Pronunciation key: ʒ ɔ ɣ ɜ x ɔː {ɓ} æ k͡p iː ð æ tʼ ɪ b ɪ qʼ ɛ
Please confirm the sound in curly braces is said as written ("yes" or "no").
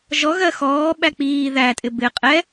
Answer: yes